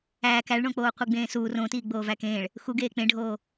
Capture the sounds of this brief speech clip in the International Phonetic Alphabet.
æː k æ ɭ ɳ õ k͡p oː qʷ i ɡ͡b ẽː s uː r õ t iː ɡ͡b oː v æ k ẽː ɭ | x u ɡ eː k͡p ẽ ɖʱ oː

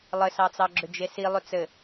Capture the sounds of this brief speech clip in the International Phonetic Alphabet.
lˠ ɘ s ɑ t͡s ɑ ɡ͡ǁ ʏ d͡ʒ e s i lˠ ʏ t͡s ɘ

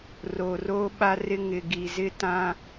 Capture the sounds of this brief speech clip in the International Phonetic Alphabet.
r o˨ r o˦ ɓ a˦ r ɪ˦ ŋ ɪ˨ ɡ i˨ z ɪ˦ t ã˦

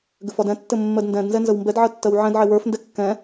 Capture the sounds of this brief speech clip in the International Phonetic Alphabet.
ɡ ɘ f ɒ d ɛ̃ tː ɘ mː ɜ d n d ɛ̃ d n z ɛ n z ə w m b ɛ d ʕ ɜ tː ɜ w ʕ ɛ̃ d ʕ e w ə˞ f n d ɛ kː ɛ̃

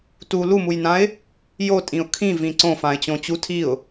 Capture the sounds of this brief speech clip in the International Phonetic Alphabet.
t u l u m u j n ã ɪ̯ | j o tʼ ĩ ʊ̯ kʰ ĩ v ĩ ǀ õ f ã ɪ̯ t͡ɕ õ t͡ɕ u tʰ i ʊ̯

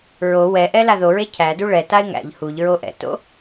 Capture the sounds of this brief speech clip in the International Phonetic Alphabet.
ɹ o w ɛ ʔ ɛ l a ð o ɹ e cʰ æ d u ɭ ɛ t a ɪ̯ ŋ æ̰ ʎ h u ʎ ɹ o ʔ ɛ̰ t o̰

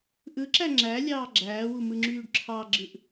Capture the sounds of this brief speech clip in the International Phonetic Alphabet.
ʔ ɯ ǁ æ ŋ͡ǁ æ lʲ ɑː ɡ͡ǁ æː w u m ɯ ŋ͡ǁ yː ɖ ǁʰ ɑ ɡ͡ǁ ɯ ʔ

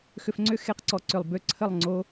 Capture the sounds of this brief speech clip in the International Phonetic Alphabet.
x ʏ˧ f ŋ͡ǀ ʏ˦ x e˧ q ǀ ɔ˨˦ ǀ ʏ˨ lˠ b ʏ˦˨ ǀʰ ə˦˨ lˠ ŋ͡ǀ o˦

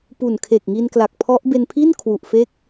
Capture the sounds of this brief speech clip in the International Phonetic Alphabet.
p u˨˩ n kʰ e˨˩ k̚ ŋ i˧ n k l a˨˩ k̚ pʰ ɔ˦˥ ʔ b e˧ n pʰ i˥˩ n kʰ w u˨˩ ʔ f e˥˩ k̚

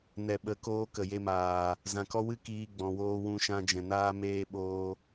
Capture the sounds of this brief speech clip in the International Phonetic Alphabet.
n ɛ˨ ɓ ə˨˦ k oː˧ k ə˨ j e˧ m aː˨ | z ã˨ k ɔ˦ w ɨ˦ k iː˧ ɡ͡b ɔ̃˨ w oː˧ w ũ˧ ʃ ã˧ d͡ʒ ɛ̃˨ n aː˧ m eː˧ ɓ oː˧

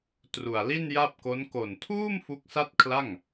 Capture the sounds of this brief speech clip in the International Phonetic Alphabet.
t r u˨˩ a̯ l i˥˩ n j a˥˩ p̚ k o˦˥ n k o˨˩ n tʰ uː˥˩ m f u˦˥ k̚ s a˥˩ t̚ kʰ l a˥˩ ŋ

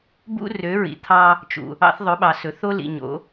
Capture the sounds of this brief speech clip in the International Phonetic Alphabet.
b ṵ˦ r ø˨˦ ɹ ḭ˨ t̪ʰ ɑ˦ | t͡ʃ ṵ˨ | ɑ̰˦ θ ðˤ ɵ˨˦ ɓ ɑ˨ s ɵ˨ θ o˦ l ḭ˨ ɲ o̰˨˦

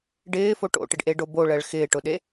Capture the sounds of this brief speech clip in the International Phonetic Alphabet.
ɖ ɪː f o ʈ o̰ ʈ ɪ ɖ ʔ e ɖ o b o ɭ ɜ ɭ x ɪː ʈ ʊ ɗ e

